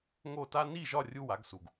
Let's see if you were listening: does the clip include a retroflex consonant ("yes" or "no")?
no